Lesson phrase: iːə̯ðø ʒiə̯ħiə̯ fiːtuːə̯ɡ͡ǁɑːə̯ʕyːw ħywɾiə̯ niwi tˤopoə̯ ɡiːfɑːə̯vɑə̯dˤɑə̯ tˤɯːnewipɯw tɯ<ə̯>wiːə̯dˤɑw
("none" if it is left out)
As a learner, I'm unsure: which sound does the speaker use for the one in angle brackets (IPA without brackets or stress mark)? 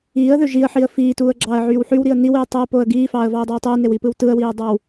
ə̯